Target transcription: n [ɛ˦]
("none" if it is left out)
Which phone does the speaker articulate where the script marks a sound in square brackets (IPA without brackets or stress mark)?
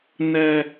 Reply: ɛ˨